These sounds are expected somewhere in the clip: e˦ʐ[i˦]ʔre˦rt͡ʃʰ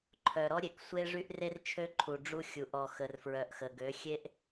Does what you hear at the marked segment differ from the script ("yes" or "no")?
yes